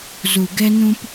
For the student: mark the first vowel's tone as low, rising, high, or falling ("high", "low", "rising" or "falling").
low